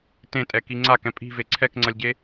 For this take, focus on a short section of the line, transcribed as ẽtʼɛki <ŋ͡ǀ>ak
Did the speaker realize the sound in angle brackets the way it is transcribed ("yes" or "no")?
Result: yes